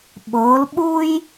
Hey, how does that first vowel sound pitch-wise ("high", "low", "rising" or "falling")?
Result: rising